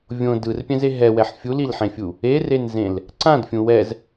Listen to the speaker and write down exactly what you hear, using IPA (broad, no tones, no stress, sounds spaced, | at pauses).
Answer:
vʲ õ d ɯ r pʲ ɛ̃ z e ɦ ɛ w ɛ ħ fʲ u l i l ħ ẽ fʲ u | e r e n z ẽ l | ǀ ã d fʲ ũ w ɛ z